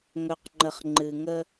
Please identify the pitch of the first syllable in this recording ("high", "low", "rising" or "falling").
low